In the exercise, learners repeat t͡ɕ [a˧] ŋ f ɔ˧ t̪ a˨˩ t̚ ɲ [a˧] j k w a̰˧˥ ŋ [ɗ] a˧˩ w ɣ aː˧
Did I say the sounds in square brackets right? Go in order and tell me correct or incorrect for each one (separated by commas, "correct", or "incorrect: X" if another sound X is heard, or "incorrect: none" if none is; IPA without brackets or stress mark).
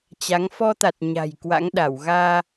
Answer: incorrect: a˨˦, incorrect: a̤˨˩, correct